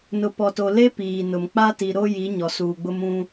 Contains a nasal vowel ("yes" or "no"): yes